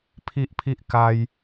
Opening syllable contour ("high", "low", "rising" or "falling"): high